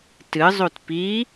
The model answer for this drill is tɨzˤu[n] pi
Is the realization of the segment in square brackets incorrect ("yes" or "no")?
yes